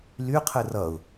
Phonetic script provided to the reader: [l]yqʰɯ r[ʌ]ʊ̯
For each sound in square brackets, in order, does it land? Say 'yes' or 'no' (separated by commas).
yes, yes